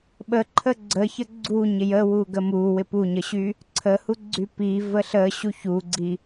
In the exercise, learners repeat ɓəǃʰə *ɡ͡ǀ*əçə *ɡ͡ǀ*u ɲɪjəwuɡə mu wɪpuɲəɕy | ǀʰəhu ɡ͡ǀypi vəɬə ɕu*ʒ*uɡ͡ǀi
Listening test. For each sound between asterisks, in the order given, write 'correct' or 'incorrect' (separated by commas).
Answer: correct, correct, incorrect